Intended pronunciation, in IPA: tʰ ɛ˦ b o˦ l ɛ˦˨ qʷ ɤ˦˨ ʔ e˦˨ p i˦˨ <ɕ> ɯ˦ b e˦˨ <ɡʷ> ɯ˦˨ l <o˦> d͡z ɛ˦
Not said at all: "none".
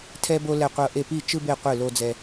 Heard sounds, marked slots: t͡ʃ, qʷ, o˦

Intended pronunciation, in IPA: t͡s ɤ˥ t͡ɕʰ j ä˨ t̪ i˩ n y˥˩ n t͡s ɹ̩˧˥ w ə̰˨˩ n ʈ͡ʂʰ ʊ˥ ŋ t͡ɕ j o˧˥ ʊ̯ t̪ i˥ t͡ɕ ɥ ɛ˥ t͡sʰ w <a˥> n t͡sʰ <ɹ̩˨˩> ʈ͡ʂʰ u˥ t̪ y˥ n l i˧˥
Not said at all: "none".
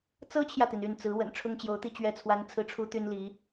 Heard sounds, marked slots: a˥, ɹ̩˥˩

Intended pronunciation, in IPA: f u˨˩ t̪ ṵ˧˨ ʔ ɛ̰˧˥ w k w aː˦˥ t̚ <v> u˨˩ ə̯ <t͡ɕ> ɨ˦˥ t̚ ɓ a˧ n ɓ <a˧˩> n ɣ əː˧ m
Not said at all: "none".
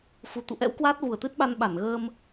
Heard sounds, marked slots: v, t̪, a˧˩

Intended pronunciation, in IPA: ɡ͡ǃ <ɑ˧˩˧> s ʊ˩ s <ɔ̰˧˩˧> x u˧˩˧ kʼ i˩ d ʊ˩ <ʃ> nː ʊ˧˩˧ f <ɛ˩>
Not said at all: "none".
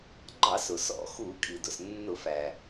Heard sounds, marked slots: ɑ˧˩˧, ɔ̰˧˩˧, s, æ˩

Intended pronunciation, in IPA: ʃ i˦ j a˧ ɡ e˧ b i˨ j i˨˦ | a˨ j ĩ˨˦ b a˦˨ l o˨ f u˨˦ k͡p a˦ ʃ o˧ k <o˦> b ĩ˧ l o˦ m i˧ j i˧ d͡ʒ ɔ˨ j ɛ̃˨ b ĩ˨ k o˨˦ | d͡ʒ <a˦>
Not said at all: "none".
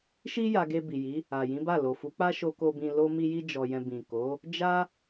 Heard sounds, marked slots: o˧, a˦

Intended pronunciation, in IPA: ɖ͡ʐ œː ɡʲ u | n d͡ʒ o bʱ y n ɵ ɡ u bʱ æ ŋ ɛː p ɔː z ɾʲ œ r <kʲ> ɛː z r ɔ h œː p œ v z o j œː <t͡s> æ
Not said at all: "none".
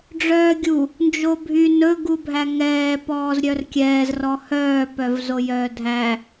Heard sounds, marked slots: kʲ, dʱ

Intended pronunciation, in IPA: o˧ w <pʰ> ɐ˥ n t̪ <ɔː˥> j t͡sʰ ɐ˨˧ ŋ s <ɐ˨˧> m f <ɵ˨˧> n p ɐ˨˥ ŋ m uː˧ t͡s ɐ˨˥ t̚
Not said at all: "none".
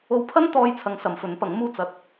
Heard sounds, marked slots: pʰ, ɔː˧, ɐ˨˧, ɵ˨˥

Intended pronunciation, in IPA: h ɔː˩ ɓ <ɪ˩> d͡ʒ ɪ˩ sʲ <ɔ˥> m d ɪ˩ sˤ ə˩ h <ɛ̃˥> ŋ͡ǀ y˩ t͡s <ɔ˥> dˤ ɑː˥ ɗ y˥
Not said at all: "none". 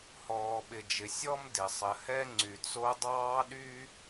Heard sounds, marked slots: ɪ˩, ɔ˥, ɛ˥, o˥

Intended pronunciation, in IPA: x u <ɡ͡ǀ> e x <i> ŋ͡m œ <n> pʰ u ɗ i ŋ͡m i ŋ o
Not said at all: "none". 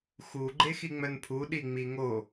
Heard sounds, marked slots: ɡ͡ǃ, i, n

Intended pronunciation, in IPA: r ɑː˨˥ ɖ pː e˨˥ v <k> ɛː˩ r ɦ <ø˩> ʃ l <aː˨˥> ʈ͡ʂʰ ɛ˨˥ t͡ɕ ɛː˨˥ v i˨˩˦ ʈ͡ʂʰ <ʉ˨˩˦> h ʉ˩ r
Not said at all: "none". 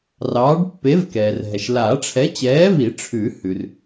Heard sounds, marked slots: k, ɛ˩, aː˨˩˦, ʉ˨˩˦

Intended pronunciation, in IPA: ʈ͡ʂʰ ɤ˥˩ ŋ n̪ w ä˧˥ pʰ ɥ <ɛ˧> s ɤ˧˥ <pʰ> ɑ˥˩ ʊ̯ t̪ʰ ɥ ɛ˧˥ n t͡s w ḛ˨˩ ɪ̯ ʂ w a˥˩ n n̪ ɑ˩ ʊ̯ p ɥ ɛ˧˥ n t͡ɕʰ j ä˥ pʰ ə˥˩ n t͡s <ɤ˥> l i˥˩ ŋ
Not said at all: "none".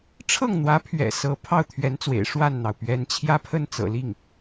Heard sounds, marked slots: ɛ̰˨˩, pʰ, ɤ̰˨˩

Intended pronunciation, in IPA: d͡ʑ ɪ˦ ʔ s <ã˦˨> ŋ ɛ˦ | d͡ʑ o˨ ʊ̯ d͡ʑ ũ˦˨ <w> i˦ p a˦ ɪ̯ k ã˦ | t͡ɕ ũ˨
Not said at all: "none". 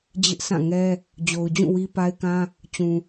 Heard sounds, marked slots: ã˦˨, w

